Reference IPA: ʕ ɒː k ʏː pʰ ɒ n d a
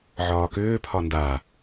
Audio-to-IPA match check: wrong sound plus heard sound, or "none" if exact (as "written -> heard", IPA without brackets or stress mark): none